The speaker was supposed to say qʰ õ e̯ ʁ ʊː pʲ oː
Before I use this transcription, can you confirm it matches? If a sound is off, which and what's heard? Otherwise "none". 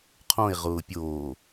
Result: none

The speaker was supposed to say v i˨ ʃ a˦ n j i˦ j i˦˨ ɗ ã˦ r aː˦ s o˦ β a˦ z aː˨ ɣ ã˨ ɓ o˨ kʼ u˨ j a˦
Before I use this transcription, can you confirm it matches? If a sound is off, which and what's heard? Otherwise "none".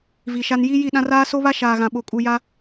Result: z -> ʃ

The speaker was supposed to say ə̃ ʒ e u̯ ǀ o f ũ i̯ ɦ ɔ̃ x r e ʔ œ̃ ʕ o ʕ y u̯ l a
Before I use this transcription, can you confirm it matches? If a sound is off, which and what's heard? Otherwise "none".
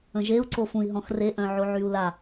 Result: none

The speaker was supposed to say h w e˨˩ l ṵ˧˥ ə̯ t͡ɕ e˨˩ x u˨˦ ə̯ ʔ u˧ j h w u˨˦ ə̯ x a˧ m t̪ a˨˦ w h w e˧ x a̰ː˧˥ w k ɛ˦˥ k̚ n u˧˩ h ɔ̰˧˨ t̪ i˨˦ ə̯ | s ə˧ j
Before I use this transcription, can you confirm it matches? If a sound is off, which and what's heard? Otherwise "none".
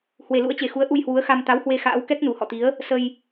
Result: none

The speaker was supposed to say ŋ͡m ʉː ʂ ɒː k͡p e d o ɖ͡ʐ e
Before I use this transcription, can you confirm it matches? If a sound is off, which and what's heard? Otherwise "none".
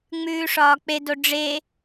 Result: none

